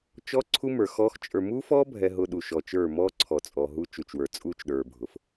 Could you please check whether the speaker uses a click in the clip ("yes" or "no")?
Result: yes